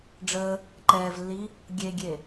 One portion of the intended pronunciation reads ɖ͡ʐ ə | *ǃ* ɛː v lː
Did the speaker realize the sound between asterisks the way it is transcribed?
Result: yes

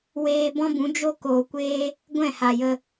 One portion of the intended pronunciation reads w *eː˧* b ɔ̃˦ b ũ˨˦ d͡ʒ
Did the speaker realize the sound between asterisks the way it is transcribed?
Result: yes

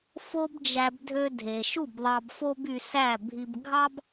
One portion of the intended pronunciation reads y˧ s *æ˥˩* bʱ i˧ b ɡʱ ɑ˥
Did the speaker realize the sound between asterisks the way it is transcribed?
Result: yes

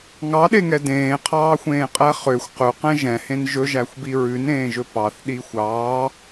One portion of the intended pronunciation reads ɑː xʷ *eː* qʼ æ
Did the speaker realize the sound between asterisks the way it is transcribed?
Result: no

